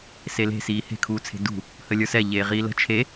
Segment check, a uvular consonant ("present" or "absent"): present